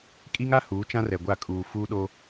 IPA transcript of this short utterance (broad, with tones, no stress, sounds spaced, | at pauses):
kʼ i˦ ŋ a˦ h uː˨˦ t͡ʃ ã˦ r ɛ˨ ɡʷ a˦˨ kʼ uː˨ f uː˦ ɗ o˦